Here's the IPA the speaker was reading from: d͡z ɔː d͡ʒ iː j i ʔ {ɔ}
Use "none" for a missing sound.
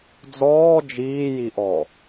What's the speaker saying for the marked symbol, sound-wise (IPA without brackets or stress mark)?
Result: ɔ